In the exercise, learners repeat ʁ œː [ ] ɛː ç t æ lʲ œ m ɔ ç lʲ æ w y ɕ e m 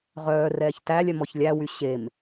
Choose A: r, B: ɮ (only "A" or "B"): A